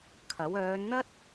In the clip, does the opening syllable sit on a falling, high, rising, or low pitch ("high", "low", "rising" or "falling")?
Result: rising